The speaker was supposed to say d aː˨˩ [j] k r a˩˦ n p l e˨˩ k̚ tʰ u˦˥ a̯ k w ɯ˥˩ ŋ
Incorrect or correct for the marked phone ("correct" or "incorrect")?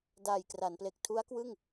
correct